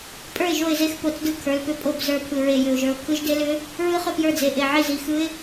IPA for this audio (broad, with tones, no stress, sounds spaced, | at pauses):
pʼ ə˞˥˩ ɪ̯ ʒ o˥˩ ɪ̯ z e˦˥ x p o˩˧˩ t͡s d ɯ˥˩ kʰ ə˞˩˧˩ l p ʏ˦˥ pʼ o˥˩ b z ə˞˥˩ pʰ ɯ˧˩ ɹ e˧˩ j ʏ˧˩ ʊ̯ ʒ ə˞˧˩ ʊ̯ kʰ ɯ˦˥ ʒ d e˦˥ l ʏ˦˥ | ɹ ɯ˦˥ χ ʏ˥˩ p j ə˞˥˩ d͡z e˩˧˩ ʔ e˧˩ ʕ i˥˩ z i˩˧˩ x ɯ˦˥ ɪ̯